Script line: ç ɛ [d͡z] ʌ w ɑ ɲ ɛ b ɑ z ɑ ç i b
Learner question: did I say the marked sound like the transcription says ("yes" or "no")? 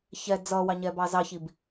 yes